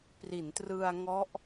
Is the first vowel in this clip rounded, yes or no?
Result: no